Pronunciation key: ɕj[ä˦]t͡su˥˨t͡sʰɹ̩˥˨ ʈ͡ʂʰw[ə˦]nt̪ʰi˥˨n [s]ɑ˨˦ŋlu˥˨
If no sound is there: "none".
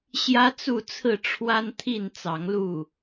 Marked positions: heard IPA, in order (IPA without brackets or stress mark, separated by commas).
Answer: ä˦, a˦, t͡s